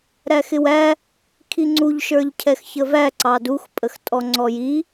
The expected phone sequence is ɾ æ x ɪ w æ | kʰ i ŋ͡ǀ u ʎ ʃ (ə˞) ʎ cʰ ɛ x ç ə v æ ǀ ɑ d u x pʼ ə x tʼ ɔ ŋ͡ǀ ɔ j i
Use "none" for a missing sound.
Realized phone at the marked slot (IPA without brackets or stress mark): ə˞